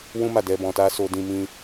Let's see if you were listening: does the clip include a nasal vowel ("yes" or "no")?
yes